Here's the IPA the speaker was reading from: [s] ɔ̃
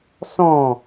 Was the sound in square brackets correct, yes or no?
yes